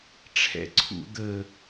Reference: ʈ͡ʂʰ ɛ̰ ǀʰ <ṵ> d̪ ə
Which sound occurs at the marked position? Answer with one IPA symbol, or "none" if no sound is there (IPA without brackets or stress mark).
ṵ